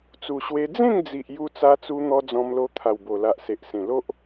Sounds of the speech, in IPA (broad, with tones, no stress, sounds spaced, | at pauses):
t͡s u˨˩ ɕ w e˧ d͡z ẽ˥˧ ŋ d͡z i˨ ʔ j u˧ t͡s a˧ t͡s u˧ n̪ ɔ˧ d͡z ɔ̃˧ m l o˧ t̪ʰ a˨˩ w b o˨˩ l a˨ ʔ s e˨ ʔ s ẽ˨˩ l o˦ ʔ